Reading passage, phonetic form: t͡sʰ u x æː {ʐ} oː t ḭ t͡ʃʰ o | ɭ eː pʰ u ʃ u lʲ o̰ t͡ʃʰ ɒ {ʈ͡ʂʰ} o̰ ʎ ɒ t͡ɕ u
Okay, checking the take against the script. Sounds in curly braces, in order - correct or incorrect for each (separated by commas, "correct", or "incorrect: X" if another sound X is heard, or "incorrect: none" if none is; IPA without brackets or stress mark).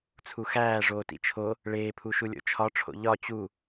correct, correct